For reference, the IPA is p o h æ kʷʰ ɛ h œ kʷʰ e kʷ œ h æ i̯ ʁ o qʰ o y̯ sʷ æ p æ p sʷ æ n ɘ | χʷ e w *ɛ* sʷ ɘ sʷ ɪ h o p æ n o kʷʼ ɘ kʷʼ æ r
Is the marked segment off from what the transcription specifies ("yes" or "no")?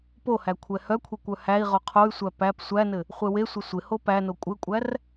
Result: yes